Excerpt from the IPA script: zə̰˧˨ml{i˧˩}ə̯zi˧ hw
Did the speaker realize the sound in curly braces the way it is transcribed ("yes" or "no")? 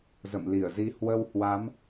yes